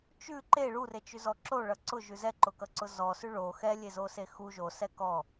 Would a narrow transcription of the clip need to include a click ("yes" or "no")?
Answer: yes